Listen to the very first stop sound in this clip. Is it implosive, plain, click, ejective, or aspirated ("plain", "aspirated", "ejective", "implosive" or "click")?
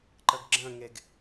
click